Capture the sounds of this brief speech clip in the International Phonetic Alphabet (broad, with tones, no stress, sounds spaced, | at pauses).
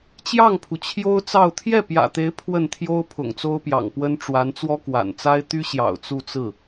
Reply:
t͡ɕ j ɑ˥˩ ŋ pʰ u˩ t͡ɕʰ j o˥ ʊ̯ t͡s ɑ˥˧ ʊ̯ t̪ʰ j ɛ˥˩ p j ä̰˨˩ t̪ e˧˥ ɪ̯ pʰ w ə˥˩ n t̪ʰ j o˥ ʊ̯ pʰ ʊ̰˨˩ ŋ t͡s o˥ ʊ̯ p j ɑ̰˨˩ ŋ p w ə˥ n ʈ͡ʂ w a˧˥ n t͡s w ɔ˥ k w a̰˨˩ n t͡s a˥ ɪ̯ t̪ y˥ ɕ j ɑ̰˨˩ ʊ̯ t͡s u˥˧ t͡s ɹ̩˥˩